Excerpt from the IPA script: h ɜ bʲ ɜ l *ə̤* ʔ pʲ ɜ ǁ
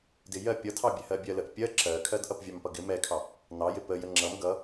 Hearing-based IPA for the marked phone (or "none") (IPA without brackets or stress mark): ə